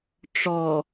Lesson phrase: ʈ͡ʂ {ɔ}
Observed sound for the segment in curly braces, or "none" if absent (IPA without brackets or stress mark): ɔ